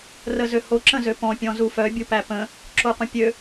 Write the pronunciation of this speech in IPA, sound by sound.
r ə z ø h o ǁ ə̃ z ø p ɔ̃ pʲ ɔ̃ z u f œ bʲ u p æ p ə̃ | ǁ o qʷ ə̃ pʲ ø

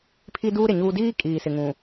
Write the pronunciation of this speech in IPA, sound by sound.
pʰ i˦ d uː˦ ɾ ɪ˨ ɲ uː˦ d iː˦ kʼ iː˨ s ɪ˨ ŋ ũ˨

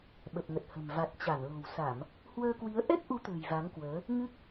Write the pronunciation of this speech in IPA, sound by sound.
ɓ ə˨˩ p̚ ŋ ə˨˩ t̚ h ə̤˨˩ m v a˨˩ t̚ t͡ɕ a˧˩ n l o̤˨˩ w s a˧˩˨ m | h w əː˧ k w i˨˦ ə̯ ʔ ɛ˦˥ k̚ ʔ u˨˦ t̪ ə̤ː˨˩ j v a˨˦ ŋ k w əː˨˦ | ŋ ɨ˦˥ k̚

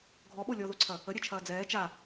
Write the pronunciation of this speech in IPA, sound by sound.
ɡʱ ɔ ɓ o lʲ ɔ ð o ǀʰ ɐ | ə ɾʲ ɛ t͡ʃʰ ɐː d͡z ɛː t͡ʃ a

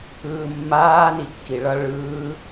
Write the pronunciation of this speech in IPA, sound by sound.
ɯː mː aː n i kː i ɭ ʌ ɭ ɯː

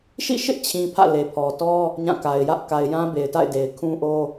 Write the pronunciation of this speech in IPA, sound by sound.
ʃ ḭ˦˨ ʃ ɪ˦ ʔ t͡ɕʰ ĩ˨ pʰ ä̰˦˨ l e˨ pʰ ɔ˨ t ɔ˦ | ɲ ã˦˨ k a˨ ɪ̯ j ä˦ ʔ k a˨ ɪ̯ j ã˦ b e˨ ɪ̯ t a̰˦˨ ɪ̯ d e˨ ɪ̯ kʰ ũ˦ ʔ o˦

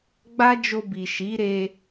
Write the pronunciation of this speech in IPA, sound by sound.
ɡ͡b a˦ d͡ʒ o˧ b i˨ ʃ i˨˦ ɾ e˧

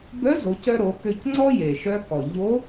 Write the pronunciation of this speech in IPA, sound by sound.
b œ˧˥ z o˩˧ c œ˧ ɾ o˩˧ k ø˧ c ŋ͡ǀ ɔ˥ j e˩ ʃ œ˧ k ɔ˩ ʎ o˧˥

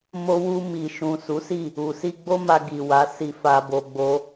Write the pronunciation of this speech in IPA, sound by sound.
m o˧ w u˧ m i˨ ʃ ũ˨ s u˨˦ s i˦˨ | u˨ s i˧ ɡ͡b o˦ m a˧ ɡ i˨ w a˨˦ s i˧ f a˧ b o˧ ɡ͡b o˦

